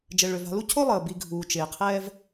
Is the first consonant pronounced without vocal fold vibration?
no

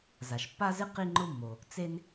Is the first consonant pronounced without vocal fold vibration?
no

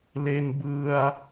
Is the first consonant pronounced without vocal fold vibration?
no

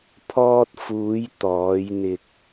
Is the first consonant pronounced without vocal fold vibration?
yes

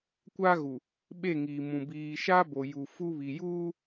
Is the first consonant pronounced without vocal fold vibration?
yes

